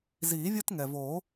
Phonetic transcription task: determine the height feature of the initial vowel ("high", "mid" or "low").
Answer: high